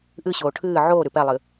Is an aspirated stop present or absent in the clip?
present